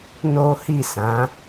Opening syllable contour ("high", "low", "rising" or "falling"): high